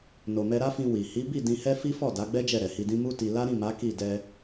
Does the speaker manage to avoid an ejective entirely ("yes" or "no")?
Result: yes